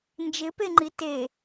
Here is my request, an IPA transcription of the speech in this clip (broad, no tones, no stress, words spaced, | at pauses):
nd͡ʒɪpeŋ͡ǃi te